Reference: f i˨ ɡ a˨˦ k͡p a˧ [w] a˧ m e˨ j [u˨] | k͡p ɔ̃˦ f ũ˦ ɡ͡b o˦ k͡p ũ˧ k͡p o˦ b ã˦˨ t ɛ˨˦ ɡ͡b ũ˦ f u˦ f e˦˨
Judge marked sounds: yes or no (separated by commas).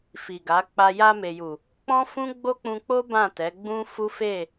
no, yes